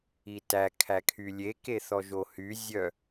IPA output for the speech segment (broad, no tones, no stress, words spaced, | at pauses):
itæ kʰækʰylʲe keθɔʒohy zʲœ